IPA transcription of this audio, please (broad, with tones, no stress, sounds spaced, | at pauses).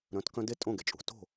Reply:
ɾ œ̃˩˥ t k œ̃˧ d e˥˩ tʼ õ˥˩ ɡ e˩ t͡ʃʼ ṳ˩ t o̤˥˩